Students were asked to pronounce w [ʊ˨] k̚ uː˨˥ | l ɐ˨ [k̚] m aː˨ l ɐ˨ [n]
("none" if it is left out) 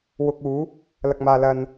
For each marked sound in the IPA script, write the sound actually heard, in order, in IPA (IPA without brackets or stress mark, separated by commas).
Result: ʊ˨, k̚, n